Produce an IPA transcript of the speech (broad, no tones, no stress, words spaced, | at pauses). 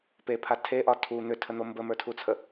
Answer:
pepʰa tʰeʔɒ tʰu n̪ʏtʰən̪o mbəmə˞tʰut͡sʰə